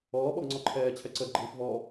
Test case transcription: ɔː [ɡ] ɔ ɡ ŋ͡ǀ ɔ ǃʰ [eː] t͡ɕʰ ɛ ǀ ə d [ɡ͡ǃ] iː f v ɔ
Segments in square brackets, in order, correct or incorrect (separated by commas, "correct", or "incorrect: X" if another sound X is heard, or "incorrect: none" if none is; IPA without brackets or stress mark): incorrect: ɓ, incorrect: ɛː, correct